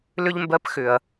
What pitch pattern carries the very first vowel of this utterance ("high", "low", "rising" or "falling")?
high